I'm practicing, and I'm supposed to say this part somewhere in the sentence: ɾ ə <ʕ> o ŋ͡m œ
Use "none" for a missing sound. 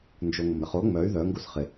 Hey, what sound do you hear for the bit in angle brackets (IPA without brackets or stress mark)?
χ